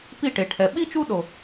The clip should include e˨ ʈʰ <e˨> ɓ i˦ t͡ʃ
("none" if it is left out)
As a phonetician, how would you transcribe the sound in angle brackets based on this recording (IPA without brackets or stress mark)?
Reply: ɛ˨